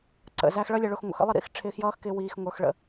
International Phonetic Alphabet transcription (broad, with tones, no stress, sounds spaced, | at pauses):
ǀ ə̰˨ z æ˧ x ɭ ʌ˧ lʲ ʌ˨ ɭ ʊ˨ x ŋʷ ə̰˨ x ə̰˦ lˠ ɪ˦˨ ɾ ḭ˧ x ʈ͡ʂʰ ɪː˧ x j ʌː˦ x k ɪː˧ w iː˨ x ŋʷ ə˞˨ x ɭ ə̰˨